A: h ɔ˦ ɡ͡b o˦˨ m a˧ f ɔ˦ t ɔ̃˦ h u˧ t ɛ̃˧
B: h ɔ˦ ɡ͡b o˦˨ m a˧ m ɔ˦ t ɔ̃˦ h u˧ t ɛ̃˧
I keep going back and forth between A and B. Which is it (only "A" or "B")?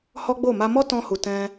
B